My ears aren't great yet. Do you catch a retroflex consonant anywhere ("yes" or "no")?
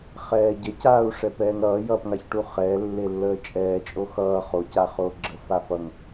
yes